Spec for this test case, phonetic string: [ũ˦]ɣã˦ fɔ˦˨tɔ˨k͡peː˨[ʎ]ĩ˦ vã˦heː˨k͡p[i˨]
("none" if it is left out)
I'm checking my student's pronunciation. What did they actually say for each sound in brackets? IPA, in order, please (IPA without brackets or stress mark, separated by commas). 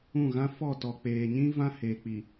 ũ˦˨, ɲ, i˨